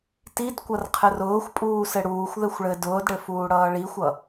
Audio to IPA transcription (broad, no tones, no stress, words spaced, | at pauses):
tid kʷʌrqʰɘrʊːxʷpʼuː sɘɽuːxʷðɘxʷ ɭɘ dʊːdɽɘ fuːɽʌːɭixʷʌ